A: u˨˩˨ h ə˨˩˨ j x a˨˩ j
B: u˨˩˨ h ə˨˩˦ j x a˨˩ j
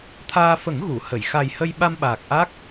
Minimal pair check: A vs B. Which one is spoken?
A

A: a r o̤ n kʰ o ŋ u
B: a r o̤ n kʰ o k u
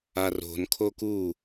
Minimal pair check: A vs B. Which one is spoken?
B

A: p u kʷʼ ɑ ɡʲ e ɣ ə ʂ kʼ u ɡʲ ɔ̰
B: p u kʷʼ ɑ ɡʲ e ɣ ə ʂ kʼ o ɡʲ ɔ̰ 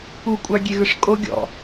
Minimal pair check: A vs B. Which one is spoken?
B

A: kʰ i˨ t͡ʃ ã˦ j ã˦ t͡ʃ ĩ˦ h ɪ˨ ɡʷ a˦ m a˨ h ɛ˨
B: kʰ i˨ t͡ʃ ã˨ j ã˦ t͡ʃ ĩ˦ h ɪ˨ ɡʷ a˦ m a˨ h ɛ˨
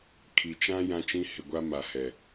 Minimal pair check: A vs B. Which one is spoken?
A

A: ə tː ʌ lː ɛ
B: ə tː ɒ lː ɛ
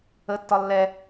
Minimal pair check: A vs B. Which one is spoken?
B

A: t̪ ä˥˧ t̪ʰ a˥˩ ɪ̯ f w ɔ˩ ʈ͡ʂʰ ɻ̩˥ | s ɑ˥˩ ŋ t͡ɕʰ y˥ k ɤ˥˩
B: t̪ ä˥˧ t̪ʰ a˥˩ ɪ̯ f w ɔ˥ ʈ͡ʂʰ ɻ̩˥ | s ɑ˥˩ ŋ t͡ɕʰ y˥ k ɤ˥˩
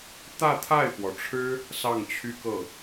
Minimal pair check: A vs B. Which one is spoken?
A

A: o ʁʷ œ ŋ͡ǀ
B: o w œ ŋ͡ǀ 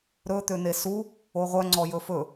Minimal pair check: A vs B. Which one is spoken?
A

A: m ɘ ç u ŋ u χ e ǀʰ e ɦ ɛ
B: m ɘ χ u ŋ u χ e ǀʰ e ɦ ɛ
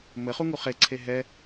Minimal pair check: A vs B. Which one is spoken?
B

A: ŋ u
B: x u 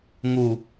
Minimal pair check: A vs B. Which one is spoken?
A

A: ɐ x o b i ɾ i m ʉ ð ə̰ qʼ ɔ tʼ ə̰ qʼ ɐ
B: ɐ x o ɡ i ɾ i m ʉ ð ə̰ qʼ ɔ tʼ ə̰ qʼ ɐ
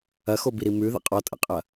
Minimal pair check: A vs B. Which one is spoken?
A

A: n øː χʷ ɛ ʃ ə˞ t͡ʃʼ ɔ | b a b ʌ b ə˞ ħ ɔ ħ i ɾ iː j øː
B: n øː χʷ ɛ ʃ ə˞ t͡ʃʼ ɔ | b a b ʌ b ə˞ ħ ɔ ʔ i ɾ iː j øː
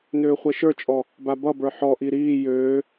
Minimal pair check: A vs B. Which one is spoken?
B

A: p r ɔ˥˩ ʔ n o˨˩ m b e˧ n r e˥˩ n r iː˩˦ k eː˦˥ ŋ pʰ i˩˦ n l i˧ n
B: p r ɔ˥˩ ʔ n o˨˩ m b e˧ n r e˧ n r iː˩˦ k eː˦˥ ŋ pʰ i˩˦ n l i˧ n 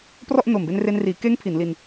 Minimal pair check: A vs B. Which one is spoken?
B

